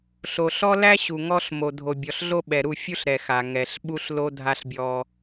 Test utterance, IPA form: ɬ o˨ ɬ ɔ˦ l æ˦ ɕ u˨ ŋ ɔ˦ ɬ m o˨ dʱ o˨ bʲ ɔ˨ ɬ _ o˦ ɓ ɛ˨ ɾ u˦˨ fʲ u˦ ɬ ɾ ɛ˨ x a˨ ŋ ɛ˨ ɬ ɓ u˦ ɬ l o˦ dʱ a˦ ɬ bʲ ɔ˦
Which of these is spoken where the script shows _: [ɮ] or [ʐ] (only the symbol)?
ɮ